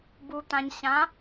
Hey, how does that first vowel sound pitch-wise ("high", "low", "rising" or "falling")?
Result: low